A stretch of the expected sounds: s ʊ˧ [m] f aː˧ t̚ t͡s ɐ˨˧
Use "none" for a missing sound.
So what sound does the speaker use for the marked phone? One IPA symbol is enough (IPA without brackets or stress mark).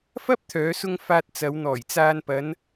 ŋ